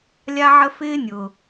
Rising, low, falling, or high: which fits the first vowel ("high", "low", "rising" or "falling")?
high